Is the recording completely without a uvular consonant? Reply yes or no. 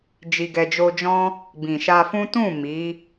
yes